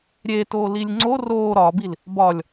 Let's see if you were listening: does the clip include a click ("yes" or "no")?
yes